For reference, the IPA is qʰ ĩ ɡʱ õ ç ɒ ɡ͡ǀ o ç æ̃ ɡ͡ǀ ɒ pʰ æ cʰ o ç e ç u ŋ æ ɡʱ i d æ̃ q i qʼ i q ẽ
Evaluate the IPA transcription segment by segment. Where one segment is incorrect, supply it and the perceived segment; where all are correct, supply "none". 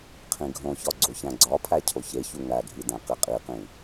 ẽ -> ĩ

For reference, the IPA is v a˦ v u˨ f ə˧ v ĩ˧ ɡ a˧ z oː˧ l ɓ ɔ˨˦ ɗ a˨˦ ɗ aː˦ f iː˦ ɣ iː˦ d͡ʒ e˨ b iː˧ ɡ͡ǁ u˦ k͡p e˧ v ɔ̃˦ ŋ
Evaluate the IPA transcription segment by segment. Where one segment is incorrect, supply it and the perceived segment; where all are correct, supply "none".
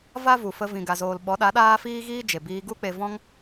ɡ͡ǁ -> ɡ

